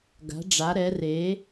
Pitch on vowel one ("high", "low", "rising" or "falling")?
rising